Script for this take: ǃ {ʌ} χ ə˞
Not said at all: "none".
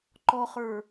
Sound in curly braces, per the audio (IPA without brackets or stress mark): ɔ